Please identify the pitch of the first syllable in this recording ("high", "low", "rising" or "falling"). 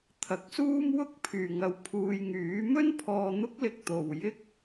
low